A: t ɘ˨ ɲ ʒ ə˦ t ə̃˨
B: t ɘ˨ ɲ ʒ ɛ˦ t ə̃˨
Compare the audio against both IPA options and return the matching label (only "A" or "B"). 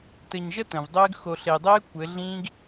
A